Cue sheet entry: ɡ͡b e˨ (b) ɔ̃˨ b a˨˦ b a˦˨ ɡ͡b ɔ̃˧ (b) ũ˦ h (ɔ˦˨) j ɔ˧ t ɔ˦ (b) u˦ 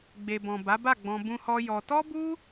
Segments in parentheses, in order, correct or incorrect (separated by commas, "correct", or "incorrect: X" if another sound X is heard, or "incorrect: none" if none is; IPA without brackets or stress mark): correct, correct, incorrect: ɔ˦, correct